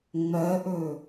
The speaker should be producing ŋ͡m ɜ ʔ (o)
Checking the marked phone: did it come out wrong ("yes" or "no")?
yes